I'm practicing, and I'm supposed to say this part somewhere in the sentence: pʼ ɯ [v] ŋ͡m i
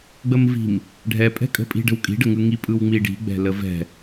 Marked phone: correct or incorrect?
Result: incorrect